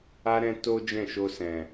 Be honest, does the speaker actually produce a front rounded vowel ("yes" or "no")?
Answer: no